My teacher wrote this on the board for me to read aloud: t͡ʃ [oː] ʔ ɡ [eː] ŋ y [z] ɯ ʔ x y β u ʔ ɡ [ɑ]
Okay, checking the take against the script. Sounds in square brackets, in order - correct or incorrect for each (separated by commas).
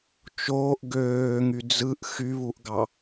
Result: correct, incorrect, incorrect, correct